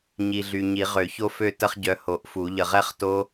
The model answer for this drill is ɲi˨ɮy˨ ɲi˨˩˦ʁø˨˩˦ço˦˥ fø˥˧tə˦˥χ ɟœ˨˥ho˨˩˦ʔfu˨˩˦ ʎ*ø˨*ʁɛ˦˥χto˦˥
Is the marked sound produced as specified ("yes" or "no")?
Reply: no